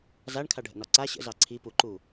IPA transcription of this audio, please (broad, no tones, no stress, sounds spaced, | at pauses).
z a ɳ kʰ a ɖʱ ə̰ n ɒ ǀ a ɕ ə̰ z ɑ ǀʰ i p u ǃ u